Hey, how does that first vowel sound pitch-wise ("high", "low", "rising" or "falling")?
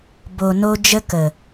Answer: low